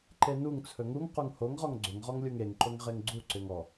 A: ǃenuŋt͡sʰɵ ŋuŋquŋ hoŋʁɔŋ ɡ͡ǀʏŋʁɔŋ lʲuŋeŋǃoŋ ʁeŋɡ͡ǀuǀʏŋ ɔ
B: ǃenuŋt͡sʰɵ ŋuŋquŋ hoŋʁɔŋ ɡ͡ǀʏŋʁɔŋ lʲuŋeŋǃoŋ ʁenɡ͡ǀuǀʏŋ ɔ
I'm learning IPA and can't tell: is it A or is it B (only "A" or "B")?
A